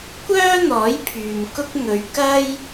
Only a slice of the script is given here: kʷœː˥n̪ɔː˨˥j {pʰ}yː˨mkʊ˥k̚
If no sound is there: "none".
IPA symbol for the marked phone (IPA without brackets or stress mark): pʰ